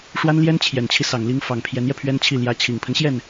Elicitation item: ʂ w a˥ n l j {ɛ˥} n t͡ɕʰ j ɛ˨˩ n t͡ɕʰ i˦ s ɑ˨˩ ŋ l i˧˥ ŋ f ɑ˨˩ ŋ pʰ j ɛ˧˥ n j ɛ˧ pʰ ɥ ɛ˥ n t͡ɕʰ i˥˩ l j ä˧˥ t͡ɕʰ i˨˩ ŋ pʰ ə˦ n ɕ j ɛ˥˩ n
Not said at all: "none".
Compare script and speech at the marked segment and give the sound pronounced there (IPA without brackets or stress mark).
ɛ˥